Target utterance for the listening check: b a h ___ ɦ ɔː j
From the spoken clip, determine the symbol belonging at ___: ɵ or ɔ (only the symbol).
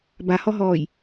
ɔ